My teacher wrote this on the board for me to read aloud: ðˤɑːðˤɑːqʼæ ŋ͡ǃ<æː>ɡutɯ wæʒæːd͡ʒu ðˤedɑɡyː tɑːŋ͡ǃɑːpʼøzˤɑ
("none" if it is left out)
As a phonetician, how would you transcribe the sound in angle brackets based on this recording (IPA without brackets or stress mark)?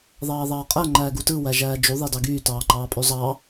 æː